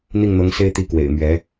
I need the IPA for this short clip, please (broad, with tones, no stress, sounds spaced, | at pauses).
n̪ i˥˩ ŋ n̪ ɤ˧˥ ŋ s e˥ ɪ̯ t̪ i˧˥ k w ḛ˨˩ ɪ̯ m ɥ ɛ˧˥